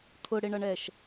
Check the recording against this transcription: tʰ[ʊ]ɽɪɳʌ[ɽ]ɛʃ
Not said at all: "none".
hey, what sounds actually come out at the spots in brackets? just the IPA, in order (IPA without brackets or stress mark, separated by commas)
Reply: ʊ, ɳ